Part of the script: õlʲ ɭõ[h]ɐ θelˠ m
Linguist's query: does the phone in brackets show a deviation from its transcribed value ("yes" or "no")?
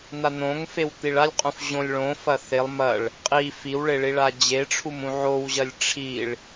yes